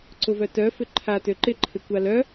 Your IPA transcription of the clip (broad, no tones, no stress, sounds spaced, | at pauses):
ǀ ʊ v œ t œ f ʏ ǃʰ a t ø ǃ ɪ ǃʰ ɪ kʷ a l œ